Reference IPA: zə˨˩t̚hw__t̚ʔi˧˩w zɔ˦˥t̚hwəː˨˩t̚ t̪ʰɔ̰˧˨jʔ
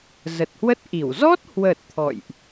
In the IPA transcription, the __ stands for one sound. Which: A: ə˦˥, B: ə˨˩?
A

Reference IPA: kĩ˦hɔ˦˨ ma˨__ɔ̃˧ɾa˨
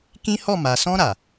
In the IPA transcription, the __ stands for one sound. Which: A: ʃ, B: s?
B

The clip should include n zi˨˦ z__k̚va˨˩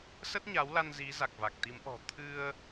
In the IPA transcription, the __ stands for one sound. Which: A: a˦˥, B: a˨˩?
B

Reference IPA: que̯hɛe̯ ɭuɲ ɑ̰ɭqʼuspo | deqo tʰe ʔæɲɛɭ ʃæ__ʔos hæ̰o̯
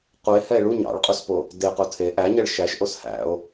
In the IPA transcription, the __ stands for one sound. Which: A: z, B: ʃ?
B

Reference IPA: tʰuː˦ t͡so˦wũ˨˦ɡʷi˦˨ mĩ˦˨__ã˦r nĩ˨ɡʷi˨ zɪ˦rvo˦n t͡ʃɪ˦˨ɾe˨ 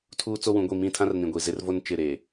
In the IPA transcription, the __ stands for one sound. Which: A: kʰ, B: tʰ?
B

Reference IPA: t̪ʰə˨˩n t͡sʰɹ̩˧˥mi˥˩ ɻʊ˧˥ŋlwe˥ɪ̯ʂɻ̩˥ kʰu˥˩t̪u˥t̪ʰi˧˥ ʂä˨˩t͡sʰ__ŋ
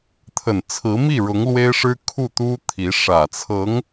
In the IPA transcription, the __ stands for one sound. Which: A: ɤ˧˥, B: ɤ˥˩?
A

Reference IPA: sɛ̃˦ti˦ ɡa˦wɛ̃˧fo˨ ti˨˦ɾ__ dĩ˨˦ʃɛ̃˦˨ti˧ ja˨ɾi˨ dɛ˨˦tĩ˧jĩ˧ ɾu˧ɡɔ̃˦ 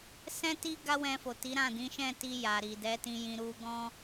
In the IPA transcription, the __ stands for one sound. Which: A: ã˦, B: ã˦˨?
B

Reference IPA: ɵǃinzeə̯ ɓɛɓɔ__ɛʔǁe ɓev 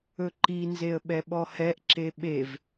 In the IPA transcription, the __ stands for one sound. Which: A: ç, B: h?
B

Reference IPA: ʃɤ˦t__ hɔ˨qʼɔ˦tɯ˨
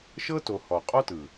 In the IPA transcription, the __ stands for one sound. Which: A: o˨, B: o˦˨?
A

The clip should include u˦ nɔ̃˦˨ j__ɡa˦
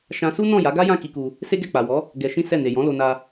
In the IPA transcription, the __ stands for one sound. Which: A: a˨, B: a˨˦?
B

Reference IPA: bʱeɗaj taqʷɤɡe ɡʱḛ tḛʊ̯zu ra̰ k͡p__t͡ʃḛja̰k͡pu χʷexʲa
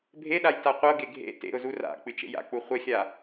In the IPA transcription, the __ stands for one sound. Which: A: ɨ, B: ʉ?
A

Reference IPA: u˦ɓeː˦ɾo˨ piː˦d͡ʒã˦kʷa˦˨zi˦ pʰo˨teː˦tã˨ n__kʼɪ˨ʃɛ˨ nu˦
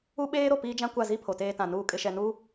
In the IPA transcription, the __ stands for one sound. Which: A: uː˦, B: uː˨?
B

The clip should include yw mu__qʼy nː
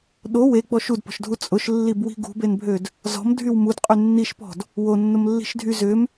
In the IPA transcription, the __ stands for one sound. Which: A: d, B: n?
A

